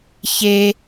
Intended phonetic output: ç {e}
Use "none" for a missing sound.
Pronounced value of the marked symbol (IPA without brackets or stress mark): e